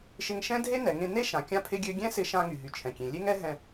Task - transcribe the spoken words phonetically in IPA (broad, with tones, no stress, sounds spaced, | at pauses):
ʃ ɪ˧ ŋ ʃ ɛ̃˥ dʱ e˥ n ɛ˩ ŋ ẽ˧ n e˥ ʃ ã˩ kʲ ã˥ pʰ ɪ˥ ɡʲ ø˥ ɡʲ ɛ̃˥ s ɪ˧ ʃ ã˧ ŋ y˩ ɦ y˩ t͡ʃʰ ɛ̃˩ kʲ ẽ˩ lʲ e˥ ŋ ɛ˥ ɦ ɛ̃˧